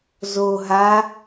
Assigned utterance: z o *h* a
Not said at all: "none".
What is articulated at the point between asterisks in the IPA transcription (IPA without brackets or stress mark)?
ɦ